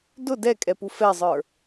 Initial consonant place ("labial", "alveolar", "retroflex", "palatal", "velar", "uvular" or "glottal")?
alveolar